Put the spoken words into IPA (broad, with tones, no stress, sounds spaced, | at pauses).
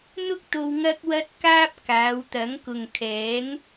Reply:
n̪ ʊ˥ k̚ t̪ o˧ w ŋ ɐ˧ k̚ w ɐ˧ t̚ k aː˧ p̚ k aː˨˧ w t̪ ɐ˨˥ ŋ k ʊ˨ ŋ kʰ ɛː˨˥ ŋ